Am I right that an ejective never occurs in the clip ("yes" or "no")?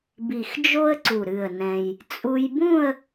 no